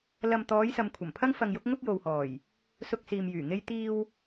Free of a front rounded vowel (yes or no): no